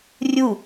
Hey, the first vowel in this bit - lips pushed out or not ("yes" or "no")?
yes